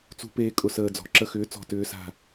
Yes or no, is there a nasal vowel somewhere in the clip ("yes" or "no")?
no